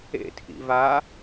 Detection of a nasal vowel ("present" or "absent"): absent